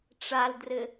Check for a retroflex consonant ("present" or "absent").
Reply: present